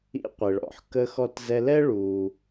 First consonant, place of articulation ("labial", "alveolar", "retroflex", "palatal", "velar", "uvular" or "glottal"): uvular